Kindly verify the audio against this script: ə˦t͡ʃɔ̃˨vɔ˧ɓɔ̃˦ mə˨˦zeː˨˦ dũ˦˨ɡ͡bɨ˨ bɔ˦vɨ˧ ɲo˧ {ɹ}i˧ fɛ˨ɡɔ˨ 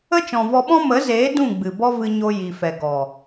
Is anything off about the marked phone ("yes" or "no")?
yes